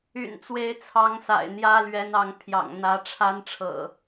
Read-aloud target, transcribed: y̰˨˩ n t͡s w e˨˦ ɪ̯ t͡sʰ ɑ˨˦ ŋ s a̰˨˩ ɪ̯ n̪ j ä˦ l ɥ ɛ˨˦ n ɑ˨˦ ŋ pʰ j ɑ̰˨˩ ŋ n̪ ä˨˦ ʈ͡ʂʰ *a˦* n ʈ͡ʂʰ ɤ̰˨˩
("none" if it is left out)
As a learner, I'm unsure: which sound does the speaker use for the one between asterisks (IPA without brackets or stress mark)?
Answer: a˦